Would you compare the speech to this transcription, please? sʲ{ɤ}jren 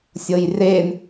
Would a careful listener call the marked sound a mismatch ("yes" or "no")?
no